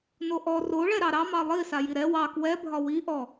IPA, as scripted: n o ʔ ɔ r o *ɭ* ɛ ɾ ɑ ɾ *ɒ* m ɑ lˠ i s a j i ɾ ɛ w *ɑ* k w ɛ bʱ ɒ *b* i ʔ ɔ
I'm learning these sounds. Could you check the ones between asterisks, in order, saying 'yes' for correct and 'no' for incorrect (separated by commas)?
yes, no, yes, no